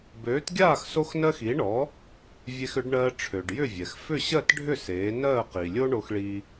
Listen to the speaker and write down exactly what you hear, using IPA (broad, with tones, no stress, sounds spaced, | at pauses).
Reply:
b øː˩˥ t ɡʲ aː˥˩ x s o˧ x n ɜ˧ x i˩˥ ɳ ɔ˩˥ | vʲ e˧ x ʏ˩˥ ɖ ɳ ɜː˧ ʈ͡ʂʰ ø˩ ɖ j ʏ˥˩ vʲ ɛ˩ x f ʏ˥˩ ɕ ɜ˥˩ t ɖʱ ʏ˥˩ s eː˩˥ n ɜː˥˩ q i˩ lʲ o˥ ɳ o˧ x ɭ iː˧